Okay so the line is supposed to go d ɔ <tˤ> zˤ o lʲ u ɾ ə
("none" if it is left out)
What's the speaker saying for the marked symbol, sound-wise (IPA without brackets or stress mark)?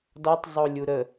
tˤ